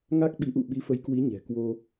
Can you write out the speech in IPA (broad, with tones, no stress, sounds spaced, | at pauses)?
ŋ a˦˥ k̚ ɓ i˨˦ ʔ ṵ˧˨ ɓ i˨˦ f ə˨˦ j k w i˨˦ ɲ ɛ̤˨˩ k w o˧